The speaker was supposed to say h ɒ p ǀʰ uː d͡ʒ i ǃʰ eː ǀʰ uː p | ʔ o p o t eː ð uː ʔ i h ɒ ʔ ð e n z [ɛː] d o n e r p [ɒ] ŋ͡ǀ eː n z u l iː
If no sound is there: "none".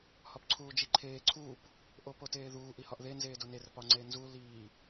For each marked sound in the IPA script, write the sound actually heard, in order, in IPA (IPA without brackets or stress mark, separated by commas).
eː, ɒ